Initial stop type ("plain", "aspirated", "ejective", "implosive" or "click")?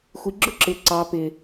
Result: click